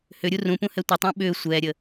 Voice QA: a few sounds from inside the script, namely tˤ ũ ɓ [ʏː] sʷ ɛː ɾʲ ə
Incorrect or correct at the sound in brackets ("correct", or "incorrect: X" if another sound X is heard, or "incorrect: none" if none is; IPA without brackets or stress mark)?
correct